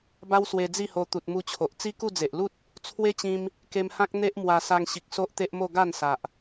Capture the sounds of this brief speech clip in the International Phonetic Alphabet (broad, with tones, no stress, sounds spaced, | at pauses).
b a˦ w s w e˧ d͡z i˥˧ h o˧ t̪ u˨ t̚ m u˧ t͡ɕʰ o˨ ʔ t͡s i˦ k u˥˧ d͡z e˨ ʔ l u˦ t̚ | t͡sʰ w e˦ t͡ɕ ĩ˧ m | k e˧ m h ã˦ k̚ n̪ e˦ ʔ m w a˧ s a˧ ŋ ɕ i˨ k̚ s o˦ ʔ t̪ e˦ ʔ m o˥˧ ɡ a˥˧ n s a˨ ʔ